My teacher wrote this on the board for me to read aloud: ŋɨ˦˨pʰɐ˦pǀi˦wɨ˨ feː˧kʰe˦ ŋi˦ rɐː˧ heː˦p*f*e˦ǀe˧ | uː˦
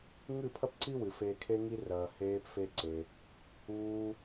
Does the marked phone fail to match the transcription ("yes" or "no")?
no